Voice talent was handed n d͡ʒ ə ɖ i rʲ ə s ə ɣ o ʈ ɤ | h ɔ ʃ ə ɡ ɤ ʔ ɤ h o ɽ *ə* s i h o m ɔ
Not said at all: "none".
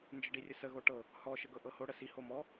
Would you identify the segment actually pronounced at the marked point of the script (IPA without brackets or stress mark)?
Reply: ə